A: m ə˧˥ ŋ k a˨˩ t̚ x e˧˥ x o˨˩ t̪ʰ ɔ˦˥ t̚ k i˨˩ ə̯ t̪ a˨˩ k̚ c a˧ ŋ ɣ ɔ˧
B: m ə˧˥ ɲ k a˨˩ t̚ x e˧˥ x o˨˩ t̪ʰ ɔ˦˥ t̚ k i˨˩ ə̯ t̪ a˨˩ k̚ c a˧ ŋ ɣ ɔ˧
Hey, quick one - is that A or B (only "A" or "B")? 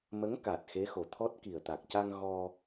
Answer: A